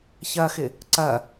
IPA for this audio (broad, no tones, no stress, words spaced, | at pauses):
çɐxɪ | ǀɐ